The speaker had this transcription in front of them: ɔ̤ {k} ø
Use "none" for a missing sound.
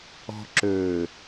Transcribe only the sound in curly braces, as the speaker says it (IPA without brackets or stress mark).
ǁ